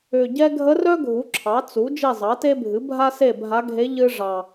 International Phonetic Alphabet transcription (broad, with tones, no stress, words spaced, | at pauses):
ʏ˨˩ɟɛ˥ ɡʱə˧˥rœ˥ ɡʱu˩˥ ǁʰɑ˩˥t͡su˩˥ d͡ʒi˦˨zˤɑ˩˥te˥bʱɨ˩˥ bʱa˥se˦˨bʱa˧˥ɡʱe˧˥ ʎɨ˥ ʐɑ˨˩